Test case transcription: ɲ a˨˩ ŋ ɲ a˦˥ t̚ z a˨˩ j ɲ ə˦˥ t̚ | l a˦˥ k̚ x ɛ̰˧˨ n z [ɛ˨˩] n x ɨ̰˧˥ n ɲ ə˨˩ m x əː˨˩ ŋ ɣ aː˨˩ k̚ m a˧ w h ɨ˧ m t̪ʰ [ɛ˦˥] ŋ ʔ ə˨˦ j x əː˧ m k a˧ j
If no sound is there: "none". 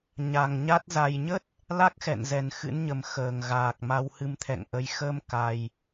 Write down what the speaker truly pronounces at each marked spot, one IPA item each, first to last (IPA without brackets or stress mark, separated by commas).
ɛ˨˩, ɛ̰˧˨